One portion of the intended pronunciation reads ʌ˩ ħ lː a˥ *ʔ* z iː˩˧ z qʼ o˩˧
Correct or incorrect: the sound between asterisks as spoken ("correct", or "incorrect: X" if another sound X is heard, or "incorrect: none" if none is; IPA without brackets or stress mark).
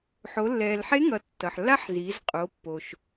incorrect: ħ